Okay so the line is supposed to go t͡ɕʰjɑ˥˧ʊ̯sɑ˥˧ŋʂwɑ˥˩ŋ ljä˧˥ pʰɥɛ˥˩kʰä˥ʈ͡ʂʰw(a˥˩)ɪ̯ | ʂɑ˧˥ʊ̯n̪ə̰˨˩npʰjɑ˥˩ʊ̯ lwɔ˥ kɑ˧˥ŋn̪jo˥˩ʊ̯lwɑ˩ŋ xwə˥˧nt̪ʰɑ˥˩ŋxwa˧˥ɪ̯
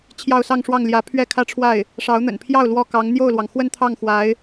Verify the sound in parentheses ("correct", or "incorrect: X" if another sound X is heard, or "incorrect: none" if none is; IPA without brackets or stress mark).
correct